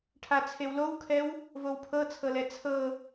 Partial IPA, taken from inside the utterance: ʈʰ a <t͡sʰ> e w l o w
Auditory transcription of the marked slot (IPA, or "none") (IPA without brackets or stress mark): t͡sʰ